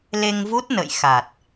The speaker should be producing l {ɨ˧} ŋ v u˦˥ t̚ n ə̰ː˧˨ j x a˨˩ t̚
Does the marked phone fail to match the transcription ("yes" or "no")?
yes